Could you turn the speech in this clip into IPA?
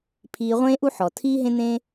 pʰ iː˨ ʁʷ ẽː˦ ʔ u˦ ħ ɔ˩ tʰ iː˥ ɦ ẽ˦ n̪ ẽ˦

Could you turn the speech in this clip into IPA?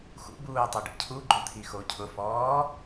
x ṵ b uː tˤ ɛ ɖ ḭ cʰ u ɡ͡ǃ ʊ t̪ʰ i x o cʰ ʊ f ɔː

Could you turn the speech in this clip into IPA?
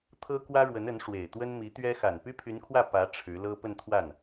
t̪ʰ ɤ˥ k w ä˥ ɻ w ə˧˥ n ə˧˥ n ʂ w e˨˩ ɪ̯ t̪ w ə˥ n m i˧˥ t̪ ɥ ɛ˥ x a˨˩ n p y˥ pʰ y˧˥ n kʰ w ä˥˩ p ä˧˥ ʈ͡ʂʰ ɻ̩˧˥ l ɤ˥ p ə˥˧ n t̪ʰ w a˥˩ n

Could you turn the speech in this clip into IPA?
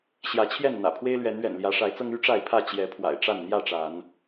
ɕ j ä˨˦ t͡ɕʰ j ɛ˥˨ n n̪ ä̰˨˩ pʰ w e˦ ɪ̯ l ɥ ɛ˨˦ n ɥ ɛ̰˨˩ n l j ä˨˦ ʂ a˨˦ ɪ̯ t͡s ɤ˦ ŋ y˦ ʈ͡ʂ a˥˨ ɪ̯ pʰ ä˥˨ t͡ɕ j ɛ˨˦ pʰ w a̰˨˩ ɪ̯ ʈ͡ʂ a˥˨ n n̪ j ä˥˨ ʈ͡ʂ a˨˦ n

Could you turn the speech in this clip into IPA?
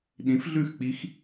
ɗ ĩ˩˥ f ɮ ʉ˥˩ x k͡p i˧˥ x

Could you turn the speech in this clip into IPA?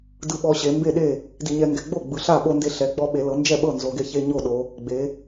d ɯ˧ ɓ ɔ˧ ɕ e˩˧ m b e˥˩ ɗ e˥˩ | d i˧ ɲ ɛ˧ ŋ ɡ ɛ˧ ɡ͡b o˥˩ ɡ͡b ɯ˩˧ ɬ a˥˩ ɓ o˧ n d e˧ ɬ ɛ˩˧ ɡ͡b ɔ˧ ɓ e˩˧ l ɤ˩˧ n d͡ʒ ɛ˥˩ ɓ ɤ˥˩ n z o˩˧ ɡ e˧ ç e˧ ɲ o˥˩ ɗ o˩˧ | ɡ͡b e˩˧

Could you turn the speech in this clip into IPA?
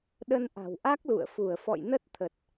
ɗ ə˧ n ʔ a̤˨˩ w ʔ a˦˥ k̚ l ṵ˧˨ ə̯ f u˧˩ ə̯ f ɔ̰˧˨ j n ə˦˥ t̚ t̪ʰ ə˨˩ t̚

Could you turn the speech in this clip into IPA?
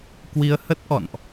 k w i˧ ə̯ h ə˦˥ t̚ ʔ ɔ̰˧˨ n ʔ

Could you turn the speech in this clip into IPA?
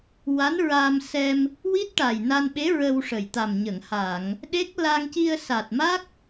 w a˧˥ n ɹ aː˧ m s ɛ˧ m | w i˦˥ t̚ ʈ aː˨˩ j n a˧ n ɓ e˧˥ ɹ ə˧ w ʂ ə˨˩ j t̪ a˨˩ m ɲ ə˨˩˨ ŋ h aː˨˩˨ ŋ | ɗ e˦˥ k̚ l a˧ ŋ c i˧ ə̯ s a˨˩ t̚ m a˦˥ k̚

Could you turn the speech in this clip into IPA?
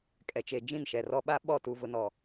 kʼ ɛ˨ t͡ʃ e˨ d͡ʒ ĩ˦˨ n ʃ ɛ˨ r ɔ˦ ɓ a˦ ɓ ɔ˦˨ t u˨ v ʊ˨ n ɔ˨

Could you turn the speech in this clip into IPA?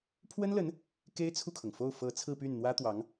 pʰ w ə˥ n l ə˧˥ n | k e˥ ɪ̯ t͡sʰ u˥˩ kʰ ɤ˩ ŋ f o˥˩ ʊ̯ f ɤ˧˥ t͡sʰ ɹ̩˥˧ p y˥˩ n n̪ w ä˥ t̪ w ɑ˧˥ ŋ

